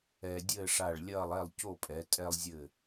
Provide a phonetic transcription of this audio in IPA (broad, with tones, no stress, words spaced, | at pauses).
ɛː˧dʲɘː˥˧ʂa˧˩ɭlʲɐː˥˧lˠ ɛ˥˧lˠco˥˧pʼɛ˩˧ tʼɛ˧lˠzʲɘ˧˩